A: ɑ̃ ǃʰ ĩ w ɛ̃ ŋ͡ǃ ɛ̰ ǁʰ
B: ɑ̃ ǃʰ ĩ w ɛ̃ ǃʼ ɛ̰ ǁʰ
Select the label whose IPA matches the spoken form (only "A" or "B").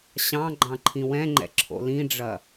A